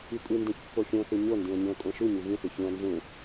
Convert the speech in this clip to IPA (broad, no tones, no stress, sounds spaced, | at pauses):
i kʷʼ i n d ẽ ç pː o xʲ õ θ u ɲ o n d ĩ ɐ̯ ɲ õ ɐ̯ kʷʼ ã ʃ u ɲ u ɣ ĩ θ u ç ũ ɐ̯ n z ũ